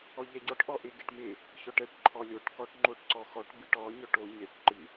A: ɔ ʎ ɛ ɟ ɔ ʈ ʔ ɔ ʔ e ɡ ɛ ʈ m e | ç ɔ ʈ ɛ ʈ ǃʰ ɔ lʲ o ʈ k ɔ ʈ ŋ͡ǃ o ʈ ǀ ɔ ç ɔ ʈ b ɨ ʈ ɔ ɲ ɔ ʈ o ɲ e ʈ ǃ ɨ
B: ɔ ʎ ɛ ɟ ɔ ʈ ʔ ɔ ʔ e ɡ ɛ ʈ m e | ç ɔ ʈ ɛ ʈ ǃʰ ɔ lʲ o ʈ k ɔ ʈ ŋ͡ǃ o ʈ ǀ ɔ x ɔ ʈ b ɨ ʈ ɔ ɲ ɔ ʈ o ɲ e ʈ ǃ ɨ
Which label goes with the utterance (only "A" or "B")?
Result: B